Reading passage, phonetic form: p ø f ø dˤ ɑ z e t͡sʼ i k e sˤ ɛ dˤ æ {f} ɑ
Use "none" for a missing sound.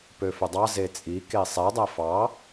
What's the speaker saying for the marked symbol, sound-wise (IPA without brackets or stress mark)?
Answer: f